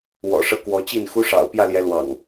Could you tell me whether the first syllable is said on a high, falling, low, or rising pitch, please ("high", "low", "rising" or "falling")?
low